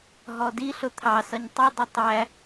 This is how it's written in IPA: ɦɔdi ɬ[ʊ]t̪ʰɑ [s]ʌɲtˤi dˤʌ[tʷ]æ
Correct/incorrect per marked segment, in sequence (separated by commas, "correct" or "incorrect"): correct, correct, incorrect